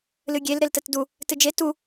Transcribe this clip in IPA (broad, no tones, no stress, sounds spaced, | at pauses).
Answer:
l ɨ ɡʲ e l ɾ e l t ə t d u | t ɨ d͡ʒ e t u